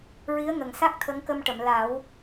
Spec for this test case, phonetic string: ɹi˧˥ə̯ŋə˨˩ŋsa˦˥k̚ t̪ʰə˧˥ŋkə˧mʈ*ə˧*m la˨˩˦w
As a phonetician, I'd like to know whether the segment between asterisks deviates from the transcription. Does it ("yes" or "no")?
yes